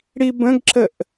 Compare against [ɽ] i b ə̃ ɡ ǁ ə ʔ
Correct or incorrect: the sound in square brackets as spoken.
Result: correct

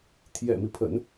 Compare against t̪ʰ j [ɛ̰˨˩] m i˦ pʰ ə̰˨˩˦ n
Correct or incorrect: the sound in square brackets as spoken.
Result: correct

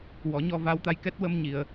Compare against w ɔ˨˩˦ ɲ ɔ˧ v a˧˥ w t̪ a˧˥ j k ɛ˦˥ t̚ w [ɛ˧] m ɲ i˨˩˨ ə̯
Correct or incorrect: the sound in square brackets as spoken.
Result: incorrect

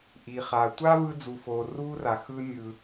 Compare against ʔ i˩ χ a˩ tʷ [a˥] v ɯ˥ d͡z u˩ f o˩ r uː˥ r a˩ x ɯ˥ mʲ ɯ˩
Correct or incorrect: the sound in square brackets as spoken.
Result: correct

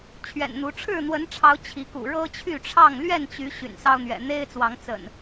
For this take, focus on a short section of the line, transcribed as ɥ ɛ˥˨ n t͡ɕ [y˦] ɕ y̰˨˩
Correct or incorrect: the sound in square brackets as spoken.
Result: incorrect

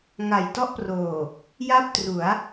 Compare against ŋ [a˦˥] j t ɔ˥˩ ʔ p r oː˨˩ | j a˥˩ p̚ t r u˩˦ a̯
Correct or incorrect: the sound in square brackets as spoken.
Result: incorrect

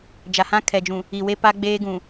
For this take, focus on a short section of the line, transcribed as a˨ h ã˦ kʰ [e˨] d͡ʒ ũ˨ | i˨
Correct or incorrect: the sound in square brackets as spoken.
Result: incorrect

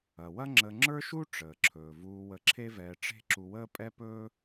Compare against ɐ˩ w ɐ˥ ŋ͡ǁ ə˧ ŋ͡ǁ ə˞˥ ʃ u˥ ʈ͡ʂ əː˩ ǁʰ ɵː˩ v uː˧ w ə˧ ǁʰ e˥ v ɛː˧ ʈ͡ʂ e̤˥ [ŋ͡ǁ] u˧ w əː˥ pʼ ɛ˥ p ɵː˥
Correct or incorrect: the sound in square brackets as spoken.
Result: incorrect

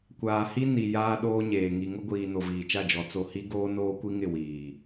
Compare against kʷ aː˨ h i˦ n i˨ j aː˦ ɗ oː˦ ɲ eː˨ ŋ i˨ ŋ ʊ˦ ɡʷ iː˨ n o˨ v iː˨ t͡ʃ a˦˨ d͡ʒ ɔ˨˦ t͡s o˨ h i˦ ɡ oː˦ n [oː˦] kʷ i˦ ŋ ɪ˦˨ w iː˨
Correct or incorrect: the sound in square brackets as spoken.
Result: correct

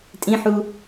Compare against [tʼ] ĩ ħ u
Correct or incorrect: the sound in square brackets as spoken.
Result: correct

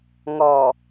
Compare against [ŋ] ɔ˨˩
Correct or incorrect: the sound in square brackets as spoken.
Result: correct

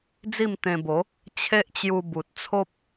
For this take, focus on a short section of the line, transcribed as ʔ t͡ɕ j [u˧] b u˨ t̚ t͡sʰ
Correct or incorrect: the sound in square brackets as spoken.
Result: correct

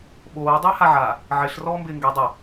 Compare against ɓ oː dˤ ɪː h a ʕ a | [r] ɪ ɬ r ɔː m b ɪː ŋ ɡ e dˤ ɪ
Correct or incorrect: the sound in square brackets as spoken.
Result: incorrect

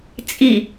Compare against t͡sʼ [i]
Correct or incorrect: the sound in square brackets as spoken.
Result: correct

